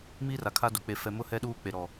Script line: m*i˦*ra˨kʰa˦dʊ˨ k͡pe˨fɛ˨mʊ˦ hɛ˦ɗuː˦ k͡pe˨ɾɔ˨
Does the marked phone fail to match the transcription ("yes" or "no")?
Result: no